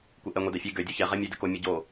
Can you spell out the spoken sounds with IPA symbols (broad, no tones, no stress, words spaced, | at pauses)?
kʷeʔɛ ŋʷedɛfʲe ɡø dʲoçɛ ʁɛmʲødɘko mʲɘɟo